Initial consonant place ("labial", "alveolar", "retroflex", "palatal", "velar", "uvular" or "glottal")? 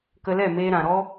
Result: velar